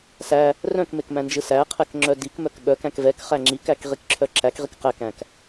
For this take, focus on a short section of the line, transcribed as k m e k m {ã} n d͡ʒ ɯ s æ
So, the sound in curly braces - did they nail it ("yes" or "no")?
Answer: no